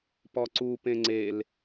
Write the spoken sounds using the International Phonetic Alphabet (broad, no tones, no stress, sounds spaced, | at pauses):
p ɔ ǀ u p ẽ ŋ͡ǀ e l